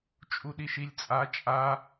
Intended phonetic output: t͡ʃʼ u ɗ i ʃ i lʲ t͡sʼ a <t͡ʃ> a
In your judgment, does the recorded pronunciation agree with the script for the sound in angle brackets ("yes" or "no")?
no